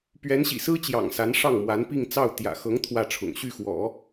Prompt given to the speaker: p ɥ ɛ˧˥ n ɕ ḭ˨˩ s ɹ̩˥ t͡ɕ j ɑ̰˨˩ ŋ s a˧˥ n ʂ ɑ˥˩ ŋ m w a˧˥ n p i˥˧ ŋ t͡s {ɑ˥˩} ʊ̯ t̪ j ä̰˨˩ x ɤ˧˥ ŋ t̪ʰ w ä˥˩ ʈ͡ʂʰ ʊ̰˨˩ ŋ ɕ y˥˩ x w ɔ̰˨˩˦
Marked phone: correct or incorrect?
correct